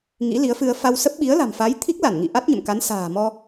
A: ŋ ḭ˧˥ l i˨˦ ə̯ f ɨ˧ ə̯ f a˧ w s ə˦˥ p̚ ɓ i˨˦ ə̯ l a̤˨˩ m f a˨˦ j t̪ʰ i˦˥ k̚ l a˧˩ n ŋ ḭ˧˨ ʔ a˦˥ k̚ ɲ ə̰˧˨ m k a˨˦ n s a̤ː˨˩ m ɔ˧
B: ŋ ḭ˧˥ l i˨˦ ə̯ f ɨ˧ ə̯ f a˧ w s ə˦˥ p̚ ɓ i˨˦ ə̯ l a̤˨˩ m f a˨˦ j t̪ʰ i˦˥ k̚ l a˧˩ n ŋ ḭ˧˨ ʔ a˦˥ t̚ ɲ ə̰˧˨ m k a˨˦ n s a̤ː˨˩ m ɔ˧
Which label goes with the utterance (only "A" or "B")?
B